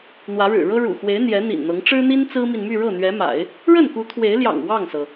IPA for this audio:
n̪ w ä˧˥ ɻ ɻ̩˨˩ ɻ ɤ˥ ɻ ṵ˨˩ x w e˧˥ ɪ̯ n̪ j ɛ˧˥ n̪ ḭ˨˩ n n̪ ɤ˧˥ ŋ ʈ͡ʂ ɻ̩˥ n̪ i˥ n t͡s ɹ̩˥ m i˨ n m y˥˧ ɻ ɤ˥˩ n̪ ɥ ɛ˧˥ m a̰˨˩˦ ɪ̯ | ɻ ə˥˩ n k u˧˥ t̪ʰ w e˧˥ ɪ̯ l j ɑ̰˨˩ ŋ w ɑ˥˩ ŋ s ɤ˩

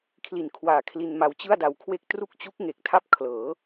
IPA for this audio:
kʰ l i˨˩ n kʰ w aː˨˩ kʰ l i˧ n m a˧ w t͡ɕ ɯ˥˩ a̯ d a˧ w kʰ w e˥˩ k̚ t r u˦˥ k̚ t͡ɕ u˦˥ k̚ ŋ e˨˩ k̚ tʰ a˥˩ p̚ kʰ l ɤː˩˦

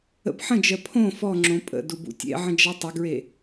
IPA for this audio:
ə̰ b ħ ə̃ d͡ʒ ɜ pʰ õ f ɔ ŋ͡ǁ õ pʼ ə̰ d u b ṵ tʲ ḛ ʕ ə̃ d͡ʒ a tˤ ə ɡ ɹ e

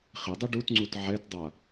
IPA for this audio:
χ ɪ dˤ i ɖ u t ŋ͡ǀ u t ʕ ɛ t dˤ a

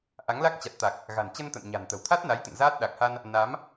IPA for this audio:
ʔ a˨˦ ŋ l a˦˥ k̚ t͡ɕ a˨˩ t̚ t̪ a˨˩ k̚ | ɣ a̤˨˩ n t͡ɕ ə˧ n t̪ ə̰˧˨ n ɲ a̤˨˩ n t̪ ə̤˨˩ w t̪ʰ a˦˥ t̚ n a˨˦ j t̪ ə̰˧˨ n z aː˦˥ t̚ ɗ a˨˩ k̚ h a˧ n | n a˨˦ m

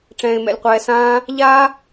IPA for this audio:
ʈ͡ʂ ɛ̃ː˧ ɪ̯ m ɛ̰˧ lʲ qʷ ɛː˧ s ãː˦ | ʎ aː˦

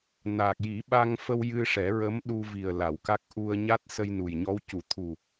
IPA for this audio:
n aː˨˩ k̚ j i˨˩˦ ɓ a˧ ŋ f ə˧ w j ɨ˧ ʂ ɛ˨˩˦ ɹ ə˧˥ m ɗ u˧ v i˨˩ ə̯ l a˨˩˨ w k a˦˥ k̚ ʔ u˧ ə̯ ɲ a˦˥ t̚ s ə˧ j n u˨˩ j ɲ ɔ˧˥ w c u˨˩˦ t̪ʰ u˨˩

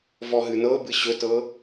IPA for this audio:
v ɔ ɦ ɨ n ɤ b ɨ ɕ ɵ t ɤ

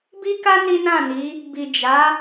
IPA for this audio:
b i˦ k a˦ n i˦ n ã˦˨ n i˨˦ | b i˨ d͡ʒ a˨˦

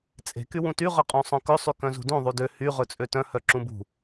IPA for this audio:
t͡sʼ e̤ k y w ũ t y ʁ œ qʼ ũ sˤ œ̃ k ɵ sˤ y k œ̃ z ṳ d ũ ðˤ y d ø h y ʁ ɵ t͡sʼ ø t œ̃ h œ ǁ ũ b ṳ

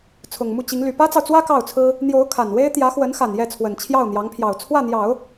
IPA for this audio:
t͡sʰ ʊ˨˩ ŋ m u˥˩ t͡ɕ i˧˥ ŋ l y˨˩ p ä˥ t͡s ɑ˨ ʊ̯ t͡s w ä˥ k ɑ˥˩ ʊ̯ t͡sʰ ɹ̩˥ | n̪ j o˧˥ ʊ̯ kʰ a˨˩ n w e˥ ɪ̯ t̪ j ä˧˥ x w ə˧˥ n x a˨˩ n j ɛ˥˩ t͡sʰ w ə˨˩ n t͡ɕʰ j ɑ˥˩ ʊ̯ n̪ j ɑ˧˥ ŋ pʰ j ɑ˨˩ ʊ̯ t͡sʰ w ä˥˩ n̪ j ɑ˨˩˦ ʊ̯

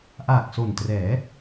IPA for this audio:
ʔ aː˨˩ k̚ s o˨˩ n t r ɛː˩˦

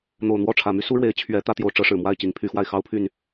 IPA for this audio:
n̪ o˨˩ ʊ̯ n̪ w ɔ˥˨ ʈ͡ʂʰ ä˨˩ m y˦ s u˦ ɻ w e˨˦ ɪ̯ t͡ɕʰ ɥ ɛ˨˦ t̪ ä˦ t̪ j o˨˦ ʊ̯ ʈ͡ʂ ɤ˨˦ ʂ ɻ̩˨˩ m w a˥˨ ɪ̯ t͡ɕ i˨˦ ŋ pʰ y˨˦ x w a˧ ɪ̯ x ɑ˦ ʊ̯ pʰ y˥˨ n

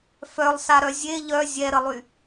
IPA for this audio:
f œ lˠ s a ɾ œ zʲ e ʎ œ zʲ ɛ ɾ ə lˠ y

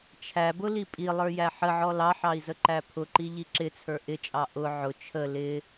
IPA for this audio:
t͡ʃʰ æ b ʊ l i pʼ i lˠ ə˞ j æ ħ ə ʕ ɔ l ɑ ħ ɑ i̯ z ə ǃ æ pʰ ʊ ǃ i ʎ i ǁ ɪ t͡sʰ ə˞ ʔ ɪ t͡ʃʼ ɑ ʔ ʊ ʕ ʊ t͡ʃʰ ə l ɪ

